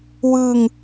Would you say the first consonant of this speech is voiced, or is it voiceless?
voiced